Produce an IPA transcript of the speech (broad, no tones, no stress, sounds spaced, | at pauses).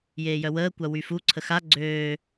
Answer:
j eː j œ w əː kʷ a w y f u ǀʰ ə x a ɡ͡ǀ øː